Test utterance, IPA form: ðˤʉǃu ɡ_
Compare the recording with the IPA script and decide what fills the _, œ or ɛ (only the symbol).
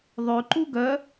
œ